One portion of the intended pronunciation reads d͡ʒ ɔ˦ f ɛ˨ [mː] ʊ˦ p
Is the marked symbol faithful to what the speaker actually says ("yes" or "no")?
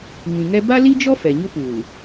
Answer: no